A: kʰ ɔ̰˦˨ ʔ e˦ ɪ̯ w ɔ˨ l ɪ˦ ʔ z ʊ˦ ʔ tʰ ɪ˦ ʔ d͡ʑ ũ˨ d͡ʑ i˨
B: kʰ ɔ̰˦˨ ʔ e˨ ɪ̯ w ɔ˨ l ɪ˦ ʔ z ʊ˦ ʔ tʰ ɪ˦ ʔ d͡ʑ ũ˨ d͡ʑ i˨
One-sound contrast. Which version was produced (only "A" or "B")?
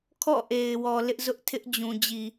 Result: B